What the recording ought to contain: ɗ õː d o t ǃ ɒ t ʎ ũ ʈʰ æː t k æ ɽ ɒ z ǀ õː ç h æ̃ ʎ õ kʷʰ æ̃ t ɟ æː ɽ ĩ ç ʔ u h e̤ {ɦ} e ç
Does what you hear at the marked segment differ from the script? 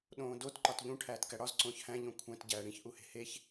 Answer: yes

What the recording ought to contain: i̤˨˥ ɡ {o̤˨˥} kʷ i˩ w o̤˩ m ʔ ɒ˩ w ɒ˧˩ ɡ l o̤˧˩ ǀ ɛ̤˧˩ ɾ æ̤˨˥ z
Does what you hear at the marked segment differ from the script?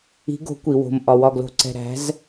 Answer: no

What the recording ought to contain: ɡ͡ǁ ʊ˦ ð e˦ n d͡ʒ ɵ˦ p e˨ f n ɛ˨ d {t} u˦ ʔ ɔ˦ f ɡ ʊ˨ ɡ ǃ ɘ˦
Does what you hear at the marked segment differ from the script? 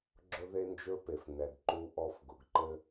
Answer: yes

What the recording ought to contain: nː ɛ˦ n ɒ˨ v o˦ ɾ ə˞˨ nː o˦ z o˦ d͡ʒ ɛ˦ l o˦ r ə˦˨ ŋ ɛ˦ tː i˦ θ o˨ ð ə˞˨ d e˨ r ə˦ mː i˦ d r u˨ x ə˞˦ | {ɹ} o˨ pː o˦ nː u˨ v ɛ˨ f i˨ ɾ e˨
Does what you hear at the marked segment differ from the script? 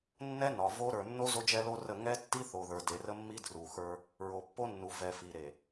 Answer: no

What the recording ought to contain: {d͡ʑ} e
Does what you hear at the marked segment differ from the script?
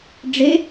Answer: yes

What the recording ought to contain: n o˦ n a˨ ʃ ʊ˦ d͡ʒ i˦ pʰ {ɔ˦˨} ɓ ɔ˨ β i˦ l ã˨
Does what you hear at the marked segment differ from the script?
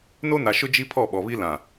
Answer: no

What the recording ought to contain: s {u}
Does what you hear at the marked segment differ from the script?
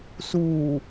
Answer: yes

